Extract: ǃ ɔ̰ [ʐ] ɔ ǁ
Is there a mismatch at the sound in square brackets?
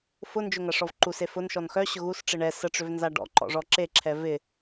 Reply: no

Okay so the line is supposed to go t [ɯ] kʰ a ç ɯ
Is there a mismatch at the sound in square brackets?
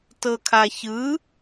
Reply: yes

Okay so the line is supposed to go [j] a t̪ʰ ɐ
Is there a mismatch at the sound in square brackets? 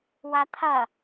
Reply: yes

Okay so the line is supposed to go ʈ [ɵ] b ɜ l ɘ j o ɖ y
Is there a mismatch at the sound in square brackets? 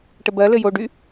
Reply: yes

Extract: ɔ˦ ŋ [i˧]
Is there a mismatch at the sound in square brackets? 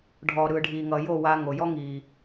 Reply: yes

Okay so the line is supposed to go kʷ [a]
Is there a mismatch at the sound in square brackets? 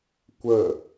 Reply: yes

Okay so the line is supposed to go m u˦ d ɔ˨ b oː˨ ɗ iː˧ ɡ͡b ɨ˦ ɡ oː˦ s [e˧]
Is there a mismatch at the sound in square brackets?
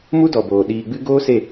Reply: yes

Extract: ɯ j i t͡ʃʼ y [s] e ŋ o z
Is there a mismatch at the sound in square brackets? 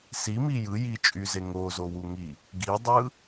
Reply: yes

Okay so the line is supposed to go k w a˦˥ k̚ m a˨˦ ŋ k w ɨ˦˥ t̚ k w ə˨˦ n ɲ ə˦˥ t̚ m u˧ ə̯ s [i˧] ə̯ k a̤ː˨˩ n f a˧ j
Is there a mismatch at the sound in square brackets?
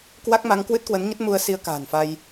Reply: no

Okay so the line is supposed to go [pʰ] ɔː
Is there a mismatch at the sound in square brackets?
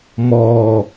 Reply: yes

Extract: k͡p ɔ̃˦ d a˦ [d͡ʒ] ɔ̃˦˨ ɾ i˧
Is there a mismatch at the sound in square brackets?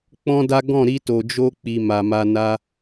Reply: yes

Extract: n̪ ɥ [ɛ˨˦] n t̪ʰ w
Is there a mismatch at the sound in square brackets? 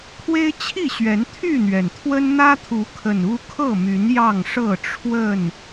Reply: yes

